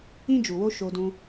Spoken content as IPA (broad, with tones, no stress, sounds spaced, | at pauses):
ĩ˦ d͡ʒ u˨ w o˦ ʃ o˧ d ũ˧